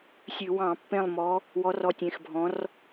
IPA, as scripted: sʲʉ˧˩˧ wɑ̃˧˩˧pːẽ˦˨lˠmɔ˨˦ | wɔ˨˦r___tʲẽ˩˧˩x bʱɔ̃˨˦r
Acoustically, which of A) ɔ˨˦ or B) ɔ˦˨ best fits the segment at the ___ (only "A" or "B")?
A